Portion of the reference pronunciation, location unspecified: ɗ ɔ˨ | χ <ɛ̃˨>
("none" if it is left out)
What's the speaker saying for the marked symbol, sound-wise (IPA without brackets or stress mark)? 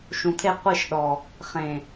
ẽ˨